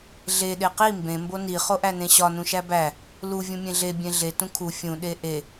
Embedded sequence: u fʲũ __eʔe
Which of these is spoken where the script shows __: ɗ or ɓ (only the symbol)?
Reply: ɗ